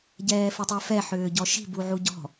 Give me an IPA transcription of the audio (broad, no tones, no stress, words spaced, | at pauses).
ɟɛːfitˤɛfɛ ħʏːɟɔʃi̤ buʕuɟɔ̤